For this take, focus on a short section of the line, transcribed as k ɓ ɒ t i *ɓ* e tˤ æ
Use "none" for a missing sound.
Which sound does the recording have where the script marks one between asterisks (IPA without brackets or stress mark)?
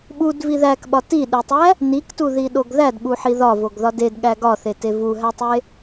ɗ